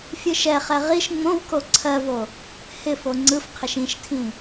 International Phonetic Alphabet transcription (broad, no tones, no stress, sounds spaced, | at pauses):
fʲ ɯ ʃ ɛ χ ɛ ʁ i ʃ ŋ͡m õ v k o ǀʰ ɜ v o | h ɪ f o ŋ͡ǀ ɯ f qʰ ɪ ʃ ĩ ʃ tʰ ĩ